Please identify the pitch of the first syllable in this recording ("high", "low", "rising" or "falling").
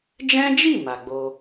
high